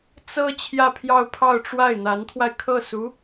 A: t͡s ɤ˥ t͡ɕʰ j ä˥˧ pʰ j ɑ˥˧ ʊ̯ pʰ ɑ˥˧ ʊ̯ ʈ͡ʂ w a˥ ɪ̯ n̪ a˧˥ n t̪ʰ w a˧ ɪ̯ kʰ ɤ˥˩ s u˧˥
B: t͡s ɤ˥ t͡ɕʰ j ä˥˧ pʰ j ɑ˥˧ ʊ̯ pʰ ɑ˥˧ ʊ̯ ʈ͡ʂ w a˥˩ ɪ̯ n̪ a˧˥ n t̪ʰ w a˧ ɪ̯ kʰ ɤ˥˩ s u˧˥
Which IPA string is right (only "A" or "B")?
B